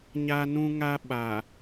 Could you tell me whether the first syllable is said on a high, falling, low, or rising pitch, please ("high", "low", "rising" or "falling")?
high